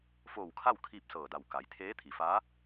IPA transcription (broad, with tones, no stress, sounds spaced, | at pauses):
f oː˧˩ w kʰ a˥˨ w kʰ iː˥˨ p̚ s ɤː˧˩ d a˧˩ w k a˩˧ j t̪ʰ eː˧˥ t̪ʰ i˩ f aː˧˥